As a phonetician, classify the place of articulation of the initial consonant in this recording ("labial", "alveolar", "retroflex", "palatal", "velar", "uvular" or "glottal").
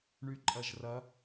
retroflex